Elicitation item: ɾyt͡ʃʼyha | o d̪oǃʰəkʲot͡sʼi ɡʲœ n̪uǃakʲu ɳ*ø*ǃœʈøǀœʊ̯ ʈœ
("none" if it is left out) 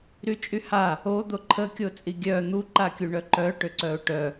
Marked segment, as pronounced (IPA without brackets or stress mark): œ